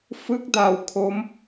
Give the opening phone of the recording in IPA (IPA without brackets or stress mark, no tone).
f